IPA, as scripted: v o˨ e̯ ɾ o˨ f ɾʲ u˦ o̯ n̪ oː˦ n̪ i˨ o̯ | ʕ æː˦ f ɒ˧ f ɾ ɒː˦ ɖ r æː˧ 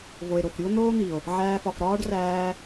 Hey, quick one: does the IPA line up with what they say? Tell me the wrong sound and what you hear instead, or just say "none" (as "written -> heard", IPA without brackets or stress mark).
none